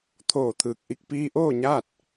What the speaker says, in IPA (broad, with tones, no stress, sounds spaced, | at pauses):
t̪ʰ oː˧˩ t̪ʰ ɯː˧˩ k̚ ʔ i˥˨ k̚ p iː˧ ʔ oː˥˨ ɲ aː˥˨ t̚